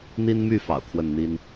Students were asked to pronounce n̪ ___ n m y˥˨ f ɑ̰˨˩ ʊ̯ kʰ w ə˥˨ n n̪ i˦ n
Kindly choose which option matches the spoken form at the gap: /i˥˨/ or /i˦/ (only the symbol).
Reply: i˦